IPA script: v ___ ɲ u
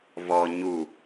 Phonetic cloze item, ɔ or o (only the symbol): ɔ